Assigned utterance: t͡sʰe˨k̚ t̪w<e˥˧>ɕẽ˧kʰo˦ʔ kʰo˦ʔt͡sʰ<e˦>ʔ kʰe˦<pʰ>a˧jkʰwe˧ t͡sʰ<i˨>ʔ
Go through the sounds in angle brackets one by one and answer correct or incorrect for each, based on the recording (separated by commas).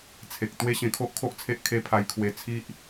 incorrect, correct, correct, incorrect